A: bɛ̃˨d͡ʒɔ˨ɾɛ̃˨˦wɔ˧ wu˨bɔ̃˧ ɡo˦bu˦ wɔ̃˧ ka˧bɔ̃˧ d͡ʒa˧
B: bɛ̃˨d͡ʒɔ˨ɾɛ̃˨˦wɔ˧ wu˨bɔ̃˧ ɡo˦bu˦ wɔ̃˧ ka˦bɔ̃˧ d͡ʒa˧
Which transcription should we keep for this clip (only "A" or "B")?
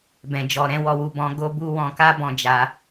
B